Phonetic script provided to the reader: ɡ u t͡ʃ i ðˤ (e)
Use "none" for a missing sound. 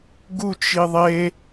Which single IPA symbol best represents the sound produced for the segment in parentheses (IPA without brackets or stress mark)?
e